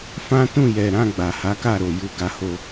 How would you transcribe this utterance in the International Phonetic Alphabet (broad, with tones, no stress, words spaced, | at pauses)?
fã˦ tũ˦˨jɛ˨ɾã˧ ɡ͡ba˨ha˨˦ka˦˨ ɾo˨ ju˧ɡa˧ho˧